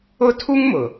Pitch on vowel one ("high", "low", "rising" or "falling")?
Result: high